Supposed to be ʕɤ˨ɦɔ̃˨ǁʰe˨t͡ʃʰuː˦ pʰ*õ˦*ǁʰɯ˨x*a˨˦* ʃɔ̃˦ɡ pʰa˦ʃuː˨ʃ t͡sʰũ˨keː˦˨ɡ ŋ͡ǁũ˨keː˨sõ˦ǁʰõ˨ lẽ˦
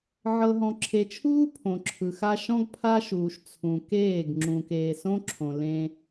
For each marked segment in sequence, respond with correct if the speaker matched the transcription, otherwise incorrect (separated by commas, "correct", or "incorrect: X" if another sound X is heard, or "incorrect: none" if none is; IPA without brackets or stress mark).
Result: incorrect: õ˨, incorrect: a˦